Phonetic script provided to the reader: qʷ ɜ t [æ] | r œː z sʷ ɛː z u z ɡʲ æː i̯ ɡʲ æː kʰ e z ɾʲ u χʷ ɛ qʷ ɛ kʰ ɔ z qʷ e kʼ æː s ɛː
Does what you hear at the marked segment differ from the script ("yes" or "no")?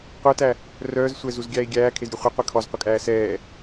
no